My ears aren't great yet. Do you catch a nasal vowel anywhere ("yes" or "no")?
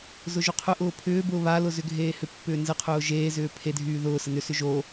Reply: no